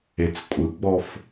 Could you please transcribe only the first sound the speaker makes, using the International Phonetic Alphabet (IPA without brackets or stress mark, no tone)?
e